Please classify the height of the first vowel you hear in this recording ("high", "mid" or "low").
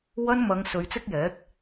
low